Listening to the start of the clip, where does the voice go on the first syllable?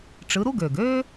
rising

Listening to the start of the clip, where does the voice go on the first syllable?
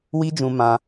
high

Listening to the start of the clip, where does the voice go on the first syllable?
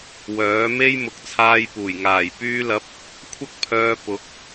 rising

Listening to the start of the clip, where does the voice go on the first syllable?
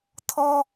high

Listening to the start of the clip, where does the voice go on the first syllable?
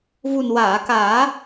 low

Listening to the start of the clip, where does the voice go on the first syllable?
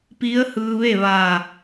rising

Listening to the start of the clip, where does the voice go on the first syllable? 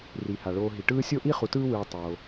low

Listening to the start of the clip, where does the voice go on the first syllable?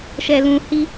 low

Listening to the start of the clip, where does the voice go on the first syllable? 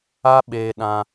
high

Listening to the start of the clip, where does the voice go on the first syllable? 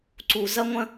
low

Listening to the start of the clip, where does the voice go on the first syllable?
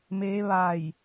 rising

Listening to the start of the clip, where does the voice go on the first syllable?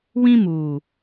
high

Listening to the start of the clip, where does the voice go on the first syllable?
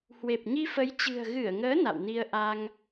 low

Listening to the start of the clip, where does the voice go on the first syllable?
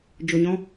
low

